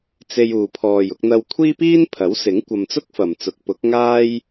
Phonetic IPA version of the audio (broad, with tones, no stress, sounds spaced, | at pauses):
t͡s e˧ j uː˨ pʰ ɔː˨ j ʊ˧ k̚ n̪ ɐ˧ w kʷʰ iː˥ p iː˥ n pʰ ɐ˨˥ w s ɪ˨˥ ŋ kʷ ɐ˧ m t͡s ʊ˥ k̚ f ɐ˨ m t͡s ʊ˨˥ k̚ p ʊ˨˥ k̚ ŋ aː˥ j